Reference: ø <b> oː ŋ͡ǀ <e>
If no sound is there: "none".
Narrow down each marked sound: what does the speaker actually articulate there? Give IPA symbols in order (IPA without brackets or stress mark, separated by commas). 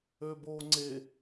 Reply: b, e